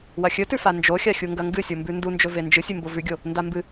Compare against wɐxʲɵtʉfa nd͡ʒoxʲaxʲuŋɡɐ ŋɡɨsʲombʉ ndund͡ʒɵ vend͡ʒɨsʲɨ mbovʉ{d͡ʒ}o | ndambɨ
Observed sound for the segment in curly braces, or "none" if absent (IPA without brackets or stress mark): ɡʲ